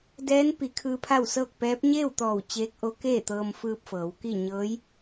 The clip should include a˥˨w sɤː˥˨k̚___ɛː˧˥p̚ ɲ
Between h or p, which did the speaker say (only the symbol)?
p